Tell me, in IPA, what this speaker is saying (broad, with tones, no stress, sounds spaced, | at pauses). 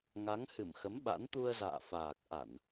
ŋ a˨˦ ŋ h ɨ˧˩ m x ə˨˦ m ɓ a̰˧˥ n t̪ u˧ ə̯ z a̰ː˧˨ f aː˨˩ k̚ ʔ a˧˩˨ n